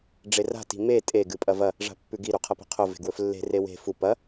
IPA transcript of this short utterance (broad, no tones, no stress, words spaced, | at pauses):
ɖ͡ʐera̤ ti̤me tʼe ɡɨpʼɐvɐ | ʐa̤pːʉɡi ɾuqʰɐpe̤qʰo ve̤ɡwɵflːe̤ rewe̤ fu pɐ